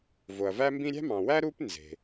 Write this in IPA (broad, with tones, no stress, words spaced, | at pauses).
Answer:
vo˩ɐ̯væ˥mbĩ˥ ɾʲæ̤˥mɑ̃˩wæ˥ ɾu˥p nze̤˩